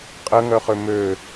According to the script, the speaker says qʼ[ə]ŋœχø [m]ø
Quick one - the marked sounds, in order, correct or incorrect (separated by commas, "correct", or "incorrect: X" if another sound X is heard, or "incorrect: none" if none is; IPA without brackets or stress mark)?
correct, correct